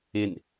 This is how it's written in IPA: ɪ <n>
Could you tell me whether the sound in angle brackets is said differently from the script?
no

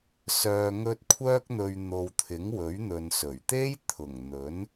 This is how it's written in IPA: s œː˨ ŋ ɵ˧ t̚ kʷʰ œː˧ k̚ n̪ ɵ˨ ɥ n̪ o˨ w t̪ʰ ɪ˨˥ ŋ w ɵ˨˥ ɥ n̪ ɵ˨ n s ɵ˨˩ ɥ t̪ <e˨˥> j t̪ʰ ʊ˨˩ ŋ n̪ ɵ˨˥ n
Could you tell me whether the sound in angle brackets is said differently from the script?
yes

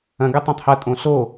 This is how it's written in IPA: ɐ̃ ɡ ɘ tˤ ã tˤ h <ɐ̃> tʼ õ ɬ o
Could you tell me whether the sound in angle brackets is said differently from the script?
yes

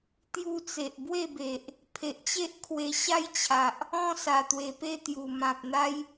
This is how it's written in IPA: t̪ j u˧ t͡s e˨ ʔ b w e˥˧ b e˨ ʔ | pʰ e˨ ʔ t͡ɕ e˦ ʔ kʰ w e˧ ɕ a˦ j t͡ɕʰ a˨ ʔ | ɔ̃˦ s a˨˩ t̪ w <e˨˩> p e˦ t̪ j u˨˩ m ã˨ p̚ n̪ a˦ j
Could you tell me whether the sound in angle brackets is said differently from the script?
no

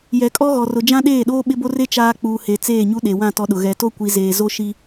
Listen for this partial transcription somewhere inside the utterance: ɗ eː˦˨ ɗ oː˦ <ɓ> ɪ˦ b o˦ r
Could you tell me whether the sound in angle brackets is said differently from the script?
no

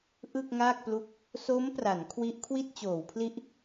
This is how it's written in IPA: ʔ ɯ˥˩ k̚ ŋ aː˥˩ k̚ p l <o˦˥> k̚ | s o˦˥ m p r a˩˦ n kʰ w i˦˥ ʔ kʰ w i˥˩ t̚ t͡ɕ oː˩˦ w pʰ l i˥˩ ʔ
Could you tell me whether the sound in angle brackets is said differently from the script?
yes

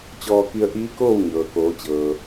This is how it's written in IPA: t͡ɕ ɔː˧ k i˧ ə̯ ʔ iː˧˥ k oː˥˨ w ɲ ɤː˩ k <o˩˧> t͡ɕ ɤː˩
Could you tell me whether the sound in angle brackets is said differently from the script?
yes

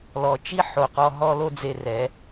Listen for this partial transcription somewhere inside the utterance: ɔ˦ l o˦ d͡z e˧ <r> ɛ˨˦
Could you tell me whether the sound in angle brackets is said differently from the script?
no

